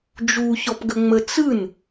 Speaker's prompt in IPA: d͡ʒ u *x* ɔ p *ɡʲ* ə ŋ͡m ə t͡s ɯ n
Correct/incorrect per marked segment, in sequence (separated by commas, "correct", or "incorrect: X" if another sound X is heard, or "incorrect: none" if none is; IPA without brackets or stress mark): incorrect: ç, incorrect: ɡ